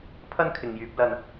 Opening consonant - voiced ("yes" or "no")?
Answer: no